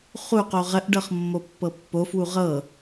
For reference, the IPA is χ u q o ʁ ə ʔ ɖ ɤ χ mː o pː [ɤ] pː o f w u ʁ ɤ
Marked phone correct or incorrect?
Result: correct